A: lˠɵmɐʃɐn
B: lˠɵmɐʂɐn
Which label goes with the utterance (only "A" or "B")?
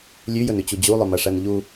B